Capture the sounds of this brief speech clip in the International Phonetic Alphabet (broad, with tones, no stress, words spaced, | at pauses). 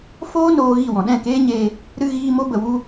foː˦noː˧ ɣi˦˨wɔ̃˨ ɗɛ̃˦˨keː˦ɲeː˧ | ɾɨ˧ɣiː˧ mo˦bə˨wu˦